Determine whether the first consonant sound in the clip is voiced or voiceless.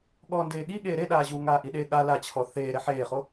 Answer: voiced